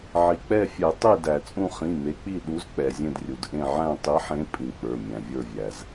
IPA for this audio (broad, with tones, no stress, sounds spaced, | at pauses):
ʕ i˩ k͡p ɛ˦˨ fʲ ɛ˨˩˦ tˤ i˦˨ d æ˩ t͡sʼ ũ˦˨ χ ĩ˩˧˩ m e˨˦ k͡p i˦˨ ɗ u˨˦ z k͡p ɛ˩ zʲ ẽ˦˨ d rʲ u˩ d ʔ ẽ˦˨ ʕ æ̃˦˨ tˤ i˨˦ ħ ẽ˨˦ pʼ ĩ˩ k͡p ə˞˩˧˩ mʲ æ̃˩ vʲ ə˞˦˨ vʲ æ˩ z